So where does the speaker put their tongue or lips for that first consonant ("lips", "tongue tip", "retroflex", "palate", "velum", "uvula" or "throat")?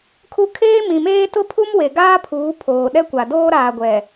velum